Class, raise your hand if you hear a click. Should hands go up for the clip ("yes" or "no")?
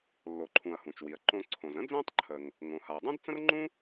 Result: yes